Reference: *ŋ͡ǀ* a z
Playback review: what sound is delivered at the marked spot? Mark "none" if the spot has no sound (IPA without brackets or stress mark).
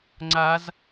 ŋ͡ǀ